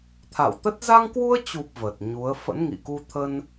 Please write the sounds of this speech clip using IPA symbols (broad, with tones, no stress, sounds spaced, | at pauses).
t̪ʰ a̰˧˨ w t̪ ə˦˥ t̚ z a˧ ŋ k w u˧ ə̯ t͡ɕ u˨˩ p̚ v ə˨˩ t̚ ɲ u˨˦ ə̯ f ə̰˧˥ n ŋ ḭ˧˨ k u˧ t̪ʰ ə˧ n